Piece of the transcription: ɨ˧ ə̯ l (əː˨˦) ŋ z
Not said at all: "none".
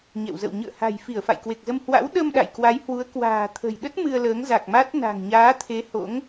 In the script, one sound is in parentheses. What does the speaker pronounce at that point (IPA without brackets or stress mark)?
əː˨˦